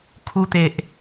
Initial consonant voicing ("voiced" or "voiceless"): voiceless